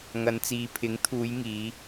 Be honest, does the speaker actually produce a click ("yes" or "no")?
no